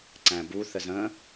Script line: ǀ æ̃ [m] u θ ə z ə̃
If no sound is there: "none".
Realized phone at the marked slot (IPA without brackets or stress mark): b